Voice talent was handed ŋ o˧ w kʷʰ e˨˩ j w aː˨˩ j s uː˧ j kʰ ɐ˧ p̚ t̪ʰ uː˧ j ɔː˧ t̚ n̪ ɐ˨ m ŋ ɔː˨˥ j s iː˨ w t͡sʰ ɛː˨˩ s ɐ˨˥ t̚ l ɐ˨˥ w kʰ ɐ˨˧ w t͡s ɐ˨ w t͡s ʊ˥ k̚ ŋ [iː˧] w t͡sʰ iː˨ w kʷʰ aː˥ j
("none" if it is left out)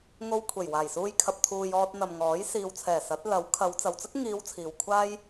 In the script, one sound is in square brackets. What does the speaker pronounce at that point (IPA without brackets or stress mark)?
iː˨˧